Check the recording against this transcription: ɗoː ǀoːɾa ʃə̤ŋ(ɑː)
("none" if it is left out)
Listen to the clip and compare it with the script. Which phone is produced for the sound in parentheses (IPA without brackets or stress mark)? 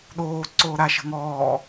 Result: ɔː